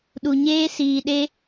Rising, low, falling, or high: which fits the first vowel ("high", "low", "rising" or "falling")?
low